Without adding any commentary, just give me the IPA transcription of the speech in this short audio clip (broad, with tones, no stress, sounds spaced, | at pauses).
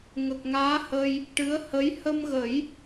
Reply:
ŋ ə˨˩ k̚ ŋ aː˧˥ h ə˧ j | ʈ ɨ˧˥ ə̯ h ə˧˥ j h ə˧ m ɣ ə˨˩˦ j